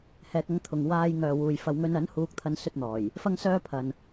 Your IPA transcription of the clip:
hɛː˧k̚ɐ˥ŋt̪ʰʊ˨ŋ waː˧j ŋœː˨wuː˨jfɐ˧w ŋɵ˧nɐ˨˥n huː˥k̚t̪ʰɐ˥nsɵ˥t̚n̪ɔː˨˩j | fɐ˥ŋsœː˥pʰɐ˨n

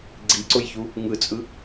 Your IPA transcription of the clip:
ɡ͡ǀiǀʊjçu | ŋɯt͡sʼɯ

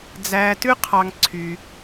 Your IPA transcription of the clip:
d͡zæː˥ tʉ˥qʰɑ˧ŋ ǀʰy˧

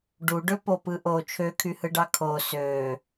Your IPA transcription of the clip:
ɖuɖø popɯʔo t͡ʃʰøkʰyhɯɖɑ kʰo sø

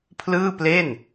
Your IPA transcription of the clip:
pʰlɯː˥˩ple˥˩n

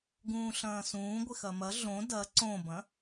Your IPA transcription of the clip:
ɡũːɬɐ̃ːsũː ɡʷɪxɐmɐ ɮõ dɐ ǀõbɐ̃

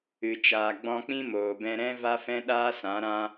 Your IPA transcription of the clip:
ɨ˨ t͡ʃaː˨ ɡ͡bɔ̃˧k͡pĩ˦moː˨bɛ̃˧ ɾɛ̃˦ va˦fɛ̃˦ɗaː˦sã˨˦ ɾã˧

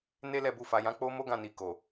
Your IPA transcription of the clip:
ne˦lɛ˦˨bu˧fa˨ jã˨˦k͡po˦ mo˦ɡã˦˨ni˨ ko˨

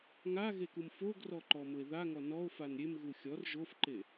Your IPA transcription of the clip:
ŋaɣekum foɡrɔǃɔmʊe̯ ðaŋɔ nɔo̯fan ɾʲemɣu xʲɔr ʒofǃe

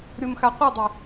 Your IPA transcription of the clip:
ɾʲomxaqʷɯdˤi

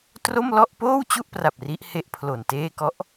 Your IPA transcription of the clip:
tro˥˩mlɔ˥˩ʔ poː˥˩wt͡ɕu˥˩ʔpra˨˩p̚ ri˦˥ʔhe˥˩ʔpʰlo˨˩nteː˥˩ kɔ˦˥ʔ

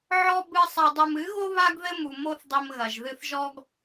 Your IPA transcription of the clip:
ʕɔ˦ bɨ˧ sˤɛ˨dˤu˨mɨ˨˦ɣo˦ βa˦ɡðɘ˦mu˨ mo˦θdˤɘ˧mɣɐ˨ʒ ðɨ˧θʒɔ˦ɡ

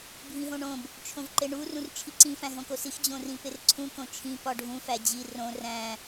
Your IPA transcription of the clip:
bʱĩɦõɳõb | t͡ʃʰõvǃeɳu rũrt͡ʃʰiǀĩ fæ̃ɦõkosix d͡ʑõrĩperǀʰũ kõt͡ʃʰĩ pɒɖʱũ fæd͡ʑi rõ ræ̃

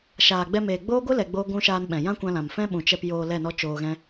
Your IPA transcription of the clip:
ʃaː˨ɡ͡bɛ˧meː˨ ɡ͡boː˦ɡʷɨ˦ lɛ˧ɡ͡boː˦ɡʷũ˦ ʃaː˧nɓɛ̃˨ jã˦kʷã˧lã˨m fɛ̃˦ɓũ˨t͡ʃɛ˧p joː˧lɛ˦˨nɔ˦ t͡ʃoː˧ɣɛ̃˦

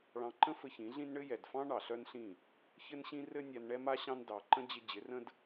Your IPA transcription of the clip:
ɭɑ̃˧ǃə̃˦ fɘ˧çĩ˨˦ɮĩ˦n ɳɘ˦ jɛ˨dfɑ̃˦ ɳɑ˨ɬœ˦nɬĩ˦˨ | çɘ˦nɕĩ˦ rɘ˦nʲa˧n ɳɛ˦ma˦ɕɑ̃˦n dɑ˧ ǃə̃˦ d͡ʑɪ˦ d͡ʑɪ˨˦rə̃˦d

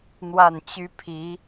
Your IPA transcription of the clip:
n̪wa˥˩nt͡ɕy˥pʰi˧˥

